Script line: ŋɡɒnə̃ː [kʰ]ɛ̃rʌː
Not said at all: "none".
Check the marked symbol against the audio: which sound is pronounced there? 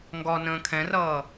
kʰ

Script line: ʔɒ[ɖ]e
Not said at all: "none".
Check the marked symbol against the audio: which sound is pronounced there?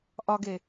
ɡ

